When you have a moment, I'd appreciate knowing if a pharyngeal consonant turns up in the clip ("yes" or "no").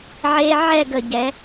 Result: yes